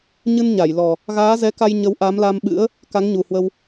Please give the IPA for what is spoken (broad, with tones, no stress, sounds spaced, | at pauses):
ɲ ɨ˧ n ɲ a˧˩ j l ɔ˨˩ | ɣ aː˨˦ z ɛ˨˦ k a˧ j ɲ ə˨˦ w ʔ a˨˦ m l a˧ m ɓ ɨ̰˧˥ ə̯ | k a˨˦ ŋ ɲ u˨˩ h w ə˧ w